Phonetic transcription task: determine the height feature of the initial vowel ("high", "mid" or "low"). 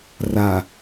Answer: low